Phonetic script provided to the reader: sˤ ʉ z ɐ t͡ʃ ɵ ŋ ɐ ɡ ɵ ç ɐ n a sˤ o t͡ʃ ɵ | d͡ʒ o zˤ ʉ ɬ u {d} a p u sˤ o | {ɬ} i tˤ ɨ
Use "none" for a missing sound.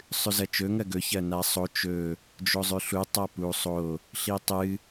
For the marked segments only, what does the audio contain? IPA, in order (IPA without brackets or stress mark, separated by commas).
tˤ, ɬ